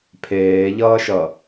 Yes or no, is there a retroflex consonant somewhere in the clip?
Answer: no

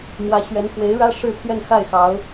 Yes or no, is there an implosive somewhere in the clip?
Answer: no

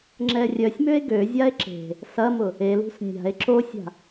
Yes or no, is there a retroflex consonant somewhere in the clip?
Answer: no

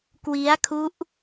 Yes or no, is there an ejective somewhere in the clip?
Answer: no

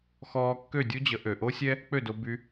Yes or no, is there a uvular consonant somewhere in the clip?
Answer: no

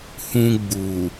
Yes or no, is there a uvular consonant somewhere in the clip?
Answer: no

